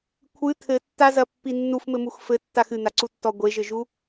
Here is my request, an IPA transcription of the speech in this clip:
kʷʰɨ t̪ʰɘtːazɐpːi nːufmɘmux fɘtːax ɨn̪aǀutːɔ ɡʷeʒɘʒu

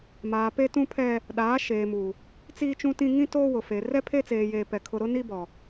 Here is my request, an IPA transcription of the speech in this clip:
maː˨ pe˦tũ˦pʰɛ˦ | ɗaː˨˦ ʃeː˨mu˨ | t͡siː˦t͡ʃũ˦tĩ˦ ŋĩ˦toː˦ wʊ˨fe˨ rɛ˦pʰe˦t͡seː˨jeː˨ pɛ˨kʰʊ˦ ɾʊ˦ni˦bɔ˨

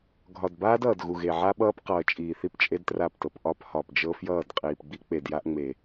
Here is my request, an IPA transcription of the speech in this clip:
ɡʱɒ˨dbaː˦d ʌː˨dɣu˨ɣe˨ ʕa˦ɓʌː˦p qʌː˨t͡ʃʼiː˨θi˦p t͡ʃʼe˦dtra˦˨ptɤ˨p ʔɒ˦p hɒ˨pd͡ʒɤ˦ fjʌː˦˨dqʼiː˨pɡ͡bi˦ k͡pe˨dja˦ʔŋ͡me˨

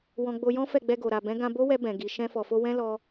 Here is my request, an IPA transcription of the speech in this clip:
wɔ̃˧ɡ͡bo˧jɔ̃˦ fɛ˦˨ɡ͡bɛ˧ɡo˨ ɾa˨bɛ̃˨˦ɡã˧ bo˦wɛ˧ bɛ̃˨ ɡi˨ ʃɛ̃˧fɔ˨fo˧ wɛ̃˦lɔ˧

